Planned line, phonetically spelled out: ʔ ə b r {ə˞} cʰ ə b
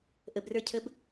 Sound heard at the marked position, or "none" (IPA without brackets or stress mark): ə˞